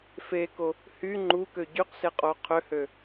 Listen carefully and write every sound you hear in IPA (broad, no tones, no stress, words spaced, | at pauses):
feko | hy ŋ͡ǃukø ɟyqseqʼo qʰøhø